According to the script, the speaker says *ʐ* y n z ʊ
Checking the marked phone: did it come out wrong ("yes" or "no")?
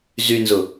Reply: yes